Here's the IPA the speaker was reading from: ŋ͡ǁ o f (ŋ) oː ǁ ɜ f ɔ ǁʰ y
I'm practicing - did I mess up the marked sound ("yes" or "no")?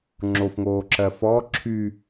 no